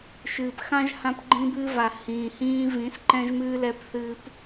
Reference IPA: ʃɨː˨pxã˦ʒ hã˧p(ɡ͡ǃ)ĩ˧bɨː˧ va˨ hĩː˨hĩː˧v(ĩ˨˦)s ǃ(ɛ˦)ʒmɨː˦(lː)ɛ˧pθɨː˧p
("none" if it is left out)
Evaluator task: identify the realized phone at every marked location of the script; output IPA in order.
ɡ͡ǃ, ĩ˨˦, ɛ̃˦, l

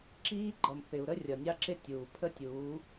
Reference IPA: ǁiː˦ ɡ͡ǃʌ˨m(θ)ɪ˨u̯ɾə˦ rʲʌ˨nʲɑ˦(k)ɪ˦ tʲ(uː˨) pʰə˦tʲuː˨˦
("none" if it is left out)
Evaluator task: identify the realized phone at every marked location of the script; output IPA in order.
θ, ǁ, uː˨

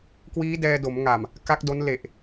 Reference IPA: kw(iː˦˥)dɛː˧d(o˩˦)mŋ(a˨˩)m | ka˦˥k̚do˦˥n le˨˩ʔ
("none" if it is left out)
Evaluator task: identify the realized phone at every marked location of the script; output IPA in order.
iː˦˥, o˩˦, a˨˩

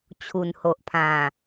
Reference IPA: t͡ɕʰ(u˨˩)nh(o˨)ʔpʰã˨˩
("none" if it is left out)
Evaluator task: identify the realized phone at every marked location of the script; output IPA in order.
u˨˩, o˨

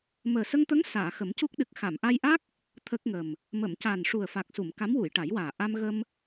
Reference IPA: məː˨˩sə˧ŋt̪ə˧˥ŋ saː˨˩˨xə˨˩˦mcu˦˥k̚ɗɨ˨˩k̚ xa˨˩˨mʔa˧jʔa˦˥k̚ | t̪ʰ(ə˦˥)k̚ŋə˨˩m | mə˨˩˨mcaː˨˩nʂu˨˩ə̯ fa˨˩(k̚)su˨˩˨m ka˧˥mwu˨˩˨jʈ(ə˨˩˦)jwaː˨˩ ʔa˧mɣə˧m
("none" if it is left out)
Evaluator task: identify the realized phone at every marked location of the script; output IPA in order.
ə˦˥, k̚, a˨˩˦

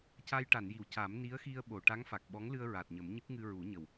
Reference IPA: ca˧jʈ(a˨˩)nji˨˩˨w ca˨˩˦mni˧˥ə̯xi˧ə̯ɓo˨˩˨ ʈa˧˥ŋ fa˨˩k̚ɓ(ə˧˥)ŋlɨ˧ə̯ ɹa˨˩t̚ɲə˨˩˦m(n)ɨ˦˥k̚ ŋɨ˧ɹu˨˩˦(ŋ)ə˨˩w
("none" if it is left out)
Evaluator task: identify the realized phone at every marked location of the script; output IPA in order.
a˨˩˨, ɔ˧˥, ɲ, ɲ

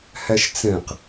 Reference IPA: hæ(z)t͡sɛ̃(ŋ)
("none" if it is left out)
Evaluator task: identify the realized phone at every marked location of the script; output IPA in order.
ʃ, q

